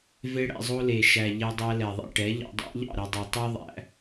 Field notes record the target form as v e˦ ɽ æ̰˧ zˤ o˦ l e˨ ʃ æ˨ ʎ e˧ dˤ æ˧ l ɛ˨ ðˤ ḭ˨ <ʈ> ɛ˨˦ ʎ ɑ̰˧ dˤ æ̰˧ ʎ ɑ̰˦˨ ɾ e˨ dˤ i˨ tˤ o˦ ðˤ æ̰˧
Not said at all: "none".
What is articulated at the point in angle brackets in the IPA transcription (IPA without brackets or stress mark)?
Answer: ʈ